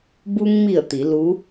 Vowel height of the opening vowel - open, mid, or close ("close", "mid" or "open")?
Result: close